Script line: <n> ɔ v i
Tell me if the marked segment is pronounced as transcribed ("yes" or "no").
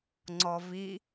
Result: no